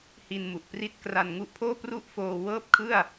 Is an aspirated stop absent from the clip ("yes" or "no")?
no